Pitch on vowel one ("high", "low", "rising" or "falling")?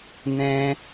high